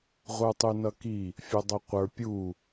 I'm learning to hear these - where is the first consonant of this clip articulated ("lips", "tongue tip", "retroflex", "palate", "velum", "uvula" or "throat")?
uvula